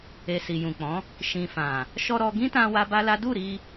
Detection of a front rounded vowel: absent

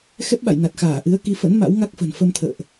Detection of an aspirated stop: present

